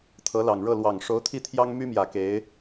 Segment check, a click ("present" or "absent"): absent